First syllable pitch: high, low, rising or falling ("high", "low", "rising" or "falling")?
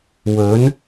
rising